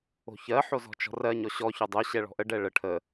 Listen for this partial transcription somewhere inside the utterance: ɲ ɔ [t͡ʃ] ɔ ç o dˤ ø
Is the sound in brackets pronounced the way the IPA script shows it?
no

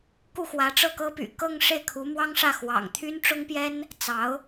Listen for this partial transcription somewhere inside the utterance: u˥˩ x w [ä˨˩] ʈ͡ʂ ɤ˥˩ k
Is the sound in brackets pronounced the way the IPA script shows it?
no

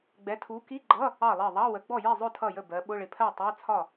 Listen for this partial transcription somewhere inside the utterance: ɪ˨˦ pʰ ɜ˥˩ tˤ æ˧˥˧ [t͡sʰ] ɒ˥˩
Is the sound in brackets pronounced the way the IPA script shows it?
yes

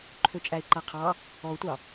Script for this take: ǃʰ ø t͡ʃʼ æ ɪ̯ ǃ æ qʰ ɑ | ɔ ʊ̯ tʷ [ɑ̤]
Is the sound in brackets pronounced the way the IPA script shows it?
no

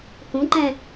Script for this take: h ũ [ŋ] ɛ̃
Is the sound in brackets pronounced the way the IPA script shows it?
no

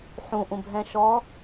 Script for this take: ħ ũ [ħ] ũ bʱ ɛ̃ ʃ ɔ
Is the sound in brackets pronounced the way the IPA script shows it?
no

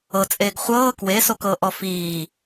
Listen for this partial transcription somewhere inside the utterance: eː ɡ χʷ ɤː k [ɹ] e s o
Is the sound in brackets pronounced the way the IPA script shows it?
no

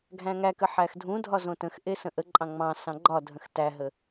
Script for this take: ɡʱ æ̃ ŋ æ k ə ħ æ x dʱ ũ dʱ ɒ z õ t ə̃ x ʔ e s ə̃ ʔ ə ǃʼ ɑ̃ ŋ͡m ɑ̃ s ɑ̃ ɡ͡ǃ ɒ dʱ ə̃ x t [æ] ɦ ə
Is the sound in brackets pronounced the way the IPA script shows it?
yes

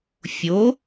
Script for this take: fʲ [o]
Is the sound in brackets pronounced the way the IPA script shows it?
yes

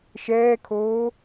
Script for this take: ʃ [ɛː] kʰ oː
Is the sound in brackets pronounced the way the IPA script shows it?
yes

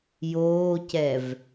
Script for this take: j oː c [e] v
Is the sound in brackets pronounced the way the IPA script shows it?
no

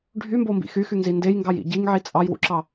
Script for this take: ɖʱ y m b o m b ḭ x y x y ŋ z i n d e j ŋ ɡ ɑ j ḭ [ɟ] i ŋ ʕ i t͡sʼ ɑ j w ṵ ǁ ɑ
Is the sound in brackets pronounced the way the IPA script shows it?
yes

